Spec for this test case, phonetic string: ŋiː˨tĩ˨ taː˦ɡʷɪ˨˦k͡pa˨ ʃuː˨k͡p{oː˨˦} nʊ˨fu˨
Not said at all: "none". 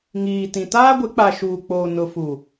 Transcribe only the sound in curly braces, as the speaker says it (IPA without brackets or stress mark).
oː˨